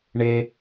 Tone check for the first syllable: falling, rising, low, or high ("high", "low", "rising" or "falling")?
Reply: low